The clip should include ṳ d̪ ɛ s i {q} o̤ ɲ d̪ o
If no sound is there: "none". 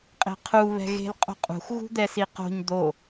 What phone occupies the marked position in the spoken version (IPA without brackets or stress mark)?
q